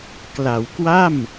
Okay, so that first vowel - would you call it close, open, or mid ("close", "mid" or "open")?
open